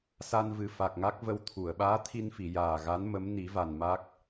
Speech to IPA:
sa˧nvɨ˨˩ fa˨˩k̚ŋa˦˥k̚ və˧w t̪ʰu˨˩˨ə̯ ɓaː˧˥t̪ʰi˧nfi˨˩˨ jaː˨˩ɣa˧˥n mə˧˥m ni˨˩˦va˨˩n ma˦˥k̚

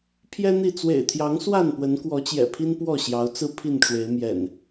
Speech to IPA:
pʰjɛ˦n̪i˥˨ t͡swḛ˨˩ɪ̯t̪ʰjɑ˨˦ŋswa˥˨n pwə˨˦nkwɔ˨˦t͡ɕjɛ̰˨˩pʰi˦n pwɔ˥˨ɕjɑ˨˦ʊ̯t͡sɹ̩˦ pʰi˥˨nʈ͡ʂwe˨˦ɪ̯mjɛ̰˨˩n

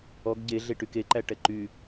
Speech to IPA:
ɔɡ ɟe ɮeʈykeǃæ ʈɛǃy

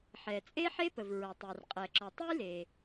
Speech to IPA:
ħɛ˩t͡sʼe˥ħe˥pə˩v ɹɐ˩tˤe˩r qʼɛ˩ǁɔ˩tˤɨ˥jle˩

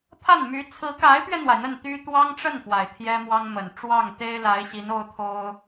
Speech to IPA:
pʰa˥˩nmy˧˥ t͡sʰɹ̩˧˥ka˧˥ɪ̯pɥɛ˧n̪wa˩ɪ̯ n̪ə˥˩nt̪y˥ t̪wɑ˥ŋ ʈ͡ʂə˥˩n fwa˨˩ɪ̯t̪ʰjɛ˥mwɑ˥ŋmə˨˩n ʈ͡ʂwɑ˥˩ŋt̪e˥ɪ̯la˧˥ɪ̯ ɕi˧˥no˥ʊ̯t̪ʰo˥ʊ̯

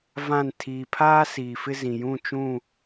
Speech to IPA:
vã˦˨n tʰiː˨pʰaː˦ siː˨fɪ˦zĩ˨jũ˦˨ t͡ʃũ˦˨

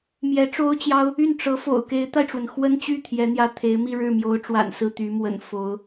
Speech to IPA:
mjɛ˧˥ʈ͡ʂo˥ʊ̯t͡ɕjɑ˥ʊ̯ | y˥˩n ʈ͡ʂɤ˧˥fo̰˨˩ʊ̯ ke˧˥ɪ̯t̪a˧ɪ̯ʈ͡ʂwə˩n xwə˥nt͡ɕy˥˩ t̪ʰjɛ˧˥n̪jä˥˩t̪ʰe˧˥ɪ̯ mi˥˧ɻɻ̩˥˩mjo˧˥ʊ̯ʈ͡ʂwa̰˨˩n sɹ̩˥˩t̪y˧˥mwə̰˨˩n fo˧˥ʊ̯

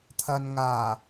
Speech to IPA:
t̪ʰɐ˨nŋaː˨˩

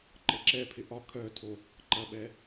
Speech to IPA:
ǃəǁɛpʰɪ ʔɒ kʰœtʰo | ǃɐɓɛ

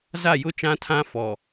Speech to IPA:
za˦˨jʊ˦t͡ʃã˦tʰã˦ fɔ˨

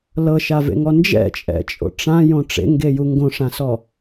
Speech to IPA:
lɤʃavḛŋɔ nd͡ʒɛ̰t͡ʃʼɛ̰t͡ʃʼo̰ ʈ͡ʂãjõ ʈ͡ʂḛŋɡeju ŋɡõʂãsɔ

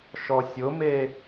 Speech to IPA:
ʃɔsʲʊme

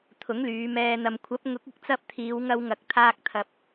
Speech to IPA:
t̪ʰʊ˨˥ŋlyː˨˧mɛː˧n̪ɐ˧m kʷʰɐ˨˥p̚ŋʊ˨˥k̚ ɪ˨˥k̚t͡sɐ˥p̚ t̪ʰiː˨˧wŋɐ˧wŋɐ˨k̚ t̪ʰaː˧k̚t̪ʰɐ˨p̚

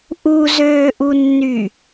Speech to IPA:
ʔuzøːʔunːy

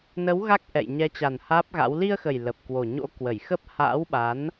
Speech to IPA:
nə˨˦w ɣa˦˥k̚ ʔɛ̰˧˨j ɲɛ˨˦t͡ɕa˨˩n haː˦˥p̚ɣa̰˧˥w li˧ə̯xə˨˩j lə˨˩p̚kwo˨˩ɲo̰˧˥ kwə˧˩jxə˦˥p̚ ha̰ː˧˥wɓa˨˦n

